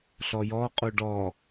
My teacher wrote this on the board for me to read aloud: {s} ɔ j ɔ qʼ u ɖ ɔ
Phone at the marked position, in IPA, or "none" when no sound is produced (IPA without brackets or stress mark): ɬ